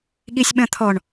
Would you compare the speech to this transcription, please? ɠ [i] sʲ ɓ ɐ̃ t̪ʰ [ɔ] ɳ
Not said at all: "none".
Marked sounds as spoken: i, ɔ

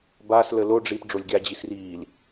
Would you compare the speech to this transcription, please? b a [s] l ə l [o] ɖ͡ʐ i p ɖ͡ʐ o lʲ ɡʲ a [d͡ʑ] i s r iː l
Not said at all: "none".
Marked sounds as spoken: s, o, d͡ʑ

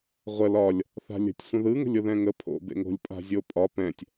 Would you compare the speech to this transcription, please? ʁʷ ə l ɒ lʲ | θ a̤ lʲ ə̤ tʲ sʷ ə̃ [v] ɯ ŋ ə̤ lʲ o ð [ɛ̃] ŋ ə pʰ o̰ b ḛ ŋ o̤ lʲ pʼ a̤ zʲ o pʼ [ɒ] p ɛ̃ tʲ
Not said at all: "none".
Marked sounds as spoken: ð, ɛ̃, ɒ

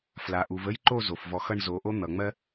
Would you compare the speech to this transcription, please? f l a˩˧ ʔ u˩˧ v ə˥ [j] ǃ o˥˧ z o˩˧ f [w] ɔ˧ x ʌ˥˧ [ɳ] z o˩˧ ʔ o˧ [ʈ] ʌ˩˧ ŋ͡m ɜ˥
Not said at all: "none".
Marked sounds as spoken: j, v, ɳ, n̪

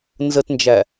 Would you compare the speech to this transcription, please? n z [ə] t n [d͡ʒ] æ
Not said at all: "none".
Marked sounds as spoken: ə, d͡ʒ

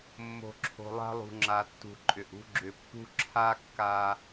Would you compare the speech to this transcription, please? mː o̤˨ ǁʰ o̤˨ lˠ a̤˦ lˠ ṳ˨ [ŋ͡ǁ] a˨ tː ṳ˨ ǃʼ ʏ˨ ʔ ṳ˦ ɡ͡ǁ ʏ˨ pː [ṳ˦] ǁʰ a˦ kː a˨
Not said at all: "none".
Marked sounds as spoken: ŋ͡ǁ, ṳ˦

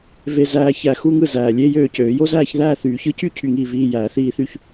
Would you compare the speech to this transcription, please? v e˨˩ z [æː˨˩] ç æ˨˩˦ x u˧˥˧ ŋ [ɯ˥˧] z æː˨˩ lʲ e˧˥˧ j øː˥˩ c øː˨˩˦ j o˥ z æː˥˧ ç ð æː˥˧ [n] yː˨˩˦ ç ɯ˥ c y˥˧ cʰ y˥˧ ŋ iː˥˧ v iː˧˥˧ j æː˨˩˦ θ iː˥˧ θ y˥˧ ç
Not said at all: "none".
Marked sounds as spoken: æː˨˩, ɯ˥˩, θ

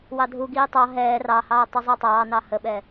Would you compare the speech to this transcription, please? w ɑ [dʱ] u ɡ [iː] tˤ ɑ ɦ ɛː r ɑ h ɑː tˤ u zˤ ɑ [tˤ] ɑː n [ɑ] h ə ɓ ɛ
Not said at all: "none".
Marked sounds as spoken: dʱ, iː, tˤ, ɑ

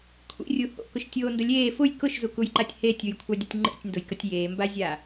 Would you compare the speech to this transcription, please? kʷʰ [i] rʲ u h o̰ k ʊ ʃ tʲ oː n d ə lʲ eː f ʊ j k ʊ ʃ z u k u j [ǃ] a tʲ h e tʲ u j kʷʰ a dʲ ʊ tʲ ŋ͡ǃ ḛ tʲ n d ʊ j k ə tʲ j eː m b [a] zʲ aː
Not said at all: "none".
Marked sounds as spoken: ḭ, ǃ, a

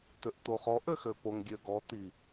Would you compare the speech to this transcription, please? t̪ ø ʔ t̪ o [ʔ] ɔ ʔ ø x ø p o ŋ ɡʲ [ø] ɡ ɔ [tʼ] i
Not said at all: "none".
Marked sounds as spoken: χ, ø, t̪

